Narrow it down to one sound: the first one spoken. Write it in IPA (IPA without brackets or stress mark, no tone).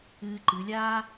ɨː